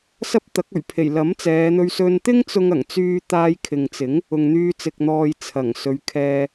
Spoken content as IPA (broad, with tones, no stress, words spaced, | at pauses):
sɐ˥p̚t̪ɐ˨˥k̚ ɵ˨˩ɥpʰe˨˩j lɐ˨˥mt͡sɛː˨˧n̪ɵ˧ɥ sɵ˧nt̪ɪ˥ŋt͡sʊ˧ŋ ɐ˨˩ŋt͡syː˧ t̪aː˧jkʰɪ˨ŋt͡sɪ˨˥ŋ | ʊ˨ŋn̪yː˧ t͡sɪ˨k̚n̪ɔː˨j t͡sʰɐ˨˩ŋsɵ˨˧ɥkʰɛː˧